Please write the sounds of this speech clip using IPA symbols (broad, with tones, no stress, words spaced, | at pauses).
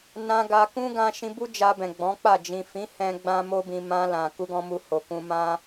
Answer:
nã˧ɡa˧ kũ˦ɡã˧ ʃĩ˧bu˦ d͡ʒa˧bɛ̃˨ ɡ͡bɔ̃˨˦k͡pa˦˨ d͡ʒĩ˨fĩ˨˦ hɛ̃˦ɡ͡bã˦mo˦bĩ˧ mã˧ lã˨ ku˧ɡɔ̃˧mu˧ ho˨kũ˧ mã˦